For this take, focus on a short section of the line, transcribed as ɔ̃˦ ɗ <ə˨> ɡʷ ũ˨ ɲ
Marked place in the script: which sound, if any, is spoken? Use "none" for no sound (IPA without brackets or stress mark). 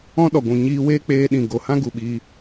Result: ɔ˨